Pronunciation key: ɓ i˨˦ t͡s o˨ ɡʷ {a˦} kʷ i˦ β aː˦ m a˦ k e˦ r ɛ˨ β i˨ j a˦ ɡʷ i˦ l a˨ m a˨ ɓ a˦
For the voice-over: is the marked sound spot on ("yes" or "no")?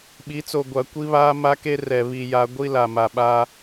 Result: no